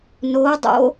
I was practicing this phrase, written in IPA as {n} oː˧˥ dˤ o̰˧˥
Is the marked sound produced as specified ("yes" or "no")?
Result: yes